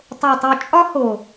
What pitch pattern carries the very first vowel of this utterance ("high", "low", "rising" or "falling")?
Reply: low